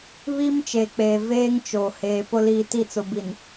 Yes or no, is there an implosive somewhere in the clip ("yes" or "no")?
no